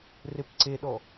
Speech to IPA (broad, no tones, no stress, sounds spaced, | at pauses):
r e p ǀ e ɗ ɔ